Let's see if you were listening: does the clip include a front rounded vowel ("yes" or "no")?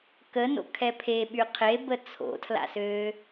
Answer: yes